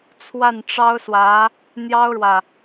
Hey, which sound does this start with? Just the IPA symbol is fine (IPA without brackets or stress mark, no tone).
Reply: t͡sʰ